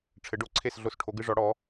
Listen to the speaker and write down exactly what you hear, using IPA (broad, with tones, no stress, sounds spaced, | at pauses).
ʈ͡ʂʰ ɘ˨˥ ɖ o˨˥ ǀʰ e˦˨ s ɮ o˦˨ s ʈʰ o˨˥ ɡ ɨ˦ ʐ ɔ˨˥ ɽ ɔ˨˥